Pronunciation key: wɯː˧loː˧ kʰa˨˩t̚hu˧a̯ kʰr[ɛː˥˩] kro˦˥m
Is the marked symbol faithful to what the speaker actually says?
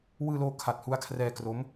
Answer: no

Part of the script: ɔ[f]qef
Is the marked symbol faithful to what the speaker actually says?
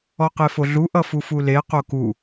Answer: no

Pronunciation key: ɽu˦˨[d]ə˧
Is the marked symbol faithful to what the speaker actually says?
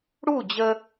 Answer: no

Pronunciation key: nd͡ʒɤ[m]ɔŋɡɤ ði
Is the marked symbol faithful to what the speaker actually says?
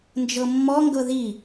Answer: no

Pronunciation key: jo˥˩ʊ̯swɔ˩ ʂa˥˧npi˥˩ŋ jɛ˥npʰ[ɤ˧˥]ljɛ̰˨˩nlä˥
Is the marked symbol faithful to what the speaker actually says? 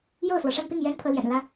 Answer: yes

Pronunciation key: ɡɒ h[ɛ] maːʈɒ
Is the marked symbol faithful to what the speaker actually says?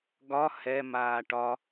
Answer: yes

